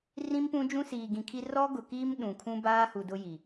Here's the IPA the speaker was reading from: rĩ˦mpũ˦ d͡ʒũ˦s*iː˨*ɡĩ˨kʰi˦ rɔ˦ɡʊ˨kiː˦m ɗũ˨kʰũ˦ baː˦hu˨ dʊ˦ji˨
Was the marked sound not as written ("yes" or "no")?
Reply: no